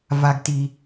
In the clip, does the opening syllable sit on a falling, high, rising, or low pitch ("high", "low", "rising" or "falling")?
low